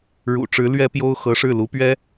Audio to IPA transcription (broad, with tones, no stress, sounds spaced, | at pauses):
ɻ ṵ˨˩ ʈ͡ʂ ɻ̩˧˥ l ɥ ɛ˥ p j o˥ ʊ̯ x ɤ˧˥ ʂ ɻ̩˥˩ l u˧˥ p ɥ ɛ˥